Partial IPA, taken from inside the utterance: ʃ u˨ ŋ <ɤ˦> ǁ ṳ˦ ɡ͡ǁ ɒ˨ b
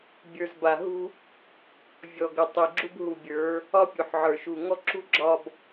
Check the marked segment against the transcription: incorrect: ɔ˦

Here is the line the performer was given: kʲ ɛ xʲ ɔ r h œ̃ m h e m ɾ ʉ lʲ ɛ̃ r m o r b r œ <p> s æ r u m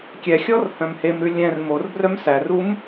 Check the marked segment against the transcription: incorrect: m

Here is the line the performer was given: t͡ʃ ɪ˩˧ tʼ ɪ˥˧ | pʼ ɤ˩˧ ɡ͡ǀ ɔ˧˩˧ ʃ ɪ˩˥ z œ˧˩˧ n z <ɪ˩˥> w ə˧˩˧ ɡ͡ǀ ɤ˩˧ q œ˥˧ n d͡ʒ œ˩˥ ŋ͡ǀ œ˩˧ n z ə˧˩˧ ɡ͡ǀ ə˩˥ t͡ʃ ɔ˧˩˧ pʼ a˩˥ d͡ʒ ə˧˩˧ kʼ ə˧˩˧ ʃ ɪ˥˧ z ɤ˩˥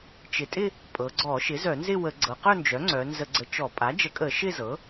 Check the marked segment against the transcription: incorrect: ɪ˥˧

